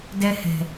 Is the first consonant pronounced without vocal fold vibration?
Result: no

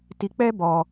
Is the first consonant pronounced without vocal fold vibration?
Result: yes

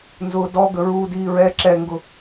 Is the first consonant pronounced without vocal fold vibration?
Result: no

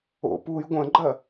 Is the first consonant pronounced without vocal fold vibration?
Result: yes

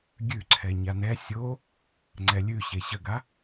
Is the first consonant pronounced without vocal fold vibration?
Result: no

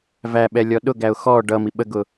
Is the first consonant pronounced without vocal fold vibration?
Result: no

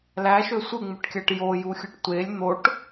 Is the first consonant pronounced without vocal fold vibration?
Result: no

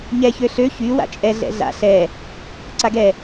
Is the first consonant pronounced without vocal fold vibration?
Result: no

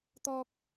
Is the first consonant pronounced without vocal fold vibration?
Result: yes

